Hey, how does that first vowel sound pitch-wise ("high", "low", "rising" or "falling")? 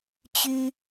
high